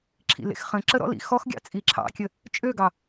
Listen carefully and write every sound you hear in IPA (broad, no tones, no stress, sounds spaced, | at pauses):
ǁʰ ḭ l ḛ x χ ə̃ ǁ ə ɾ ɔ̰ l ḭ x ɔ x ɡʲ ɑ̰ t͡sʼ i ǁʰ ɑ̰ kʲ ə | t͡ʃʼ ø ɡ ɑ